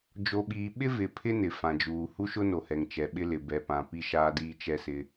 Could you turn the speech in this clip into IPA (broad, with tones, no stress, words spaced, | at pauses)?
d͡ʒo˨ɓiː˨ɓɪ˦ vɪ˨pʰɪ˦ nɪ˨ fã˨d͡ʒuː˨ hu˦ʃʊ˦no˨hɛ˨ŋ t͡ʃɛ˨ɓɪ˦lɪ˨ bɛ˨pã˨ pi˦ʃaː˦diː˦ t͡ʃɛ˦sɪ˦